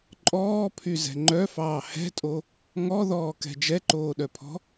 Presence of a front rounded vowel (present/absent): present